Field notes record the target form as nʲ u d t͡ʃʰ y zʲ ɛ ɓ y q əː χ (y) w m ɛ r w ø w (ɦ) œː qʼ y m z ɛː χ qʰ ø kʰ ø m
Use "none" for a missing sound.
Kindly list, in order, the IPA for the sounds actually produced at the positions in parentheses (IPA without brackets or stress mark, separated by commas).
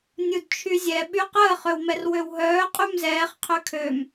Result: ø, ɦ